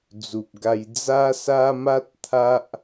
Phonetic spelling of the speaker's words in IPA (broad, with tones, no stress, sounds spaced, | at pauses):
d͡z u˨ p̚ ɡ a˧ j d͡z a˦ s a˦ m a˦ t̚ t̪ʰ a˦ ʔ